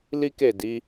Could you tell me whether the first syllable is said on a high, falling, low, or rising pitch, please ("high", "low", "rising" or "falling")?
high